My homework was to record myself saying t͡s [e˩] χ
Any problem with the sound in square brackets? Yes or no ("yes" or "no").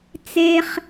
yes